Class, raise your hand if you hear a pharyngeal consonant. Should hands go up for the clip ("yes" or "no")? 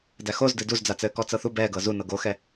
no